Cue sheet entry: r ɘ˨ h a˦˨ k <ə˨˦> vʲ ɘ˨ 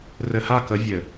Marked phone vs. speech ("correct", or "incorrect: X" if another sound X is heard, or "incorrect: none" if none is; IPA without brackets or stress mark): correct